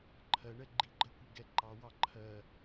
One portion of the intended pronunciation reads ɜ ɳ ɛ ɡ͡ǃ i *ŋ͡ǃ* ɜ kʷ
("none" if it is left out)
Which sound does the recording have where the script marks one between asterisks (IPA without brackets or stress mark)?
ɡ͡ǃ